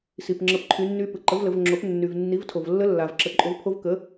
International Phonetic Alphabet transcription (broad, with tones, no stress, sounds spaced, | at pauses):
s i˩ p ŋ͡ǁ ə˩˥ p ǃʰ y˩˥ nː y˧˥ p ɯ˩ ǃ ə˩˥ v l ə˩˧ v ŋ͡ǁ o˩˥ p nː y˩ v nː i˩˥ v tʰ o˩ v lː ə˧˥ lː a˩ v ǁ ə˩˧ ǃʼ o˩˥ v pʰ o˧˥ v k ə˩˥